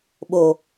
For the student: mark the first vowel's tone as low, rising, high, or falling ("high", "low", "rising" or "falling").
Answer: low